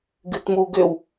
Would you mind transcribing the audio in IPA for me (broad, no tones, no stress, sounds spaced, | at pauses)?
ɡ ɨ t m u ɡ ʏ w